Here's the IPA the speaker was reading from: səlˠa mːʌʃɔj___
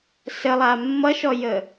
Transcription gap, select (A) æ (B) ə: B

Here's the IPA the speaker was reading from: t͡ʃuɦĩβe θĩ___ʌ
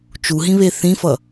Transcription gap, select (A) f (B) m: A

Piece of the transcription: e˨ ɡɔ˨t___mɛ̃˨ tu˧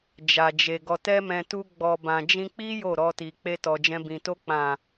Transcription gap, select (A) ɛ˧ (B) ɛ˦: A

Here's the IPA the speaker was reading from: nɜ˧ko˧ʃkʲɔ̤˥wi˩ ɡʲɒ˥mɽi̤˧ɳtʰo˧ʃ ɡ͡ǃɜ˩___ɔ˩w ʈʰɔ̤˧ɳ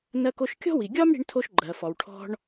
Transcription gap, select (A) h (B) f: B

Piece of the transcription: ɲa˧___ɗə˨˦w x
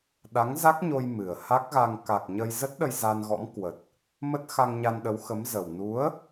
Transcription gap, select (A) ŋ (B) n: B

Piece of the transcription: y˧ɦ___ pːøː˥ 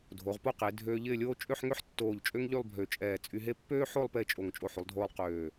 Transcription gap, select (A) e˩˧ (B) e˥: B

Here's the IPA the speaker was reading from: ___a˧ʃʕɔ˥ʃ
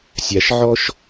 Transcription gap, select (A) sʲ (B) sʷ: A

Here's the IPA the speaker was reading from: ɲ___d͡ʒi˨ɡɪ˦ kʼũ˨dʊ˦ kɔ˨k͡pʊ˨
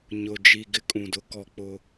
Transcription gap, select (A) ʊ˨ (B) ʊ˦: A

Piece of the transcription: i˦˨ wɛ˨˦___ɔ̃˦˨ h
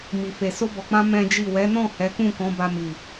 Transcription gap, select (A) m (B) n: B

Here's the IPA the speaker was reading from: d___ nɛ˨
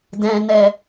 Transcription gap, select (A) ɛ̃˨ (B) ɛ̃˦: A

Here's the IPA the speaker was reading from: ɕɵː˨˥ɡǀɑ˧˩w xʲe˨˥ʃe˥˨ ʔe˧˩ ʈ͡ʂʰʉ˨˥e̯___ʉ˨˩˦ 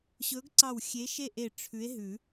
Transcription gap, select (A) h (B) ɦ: B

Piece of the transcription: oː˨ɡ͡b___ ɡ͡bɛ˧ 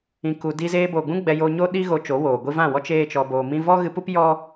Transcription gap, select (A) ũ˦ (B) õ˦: A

